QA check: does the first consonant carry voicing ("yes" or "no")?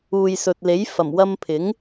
yes